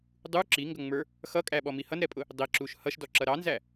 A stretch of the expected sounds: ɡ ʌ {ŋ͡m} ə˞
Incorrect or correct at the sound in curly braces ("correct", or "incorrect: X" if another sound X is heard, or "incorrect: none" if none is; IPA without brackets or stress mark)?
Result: correct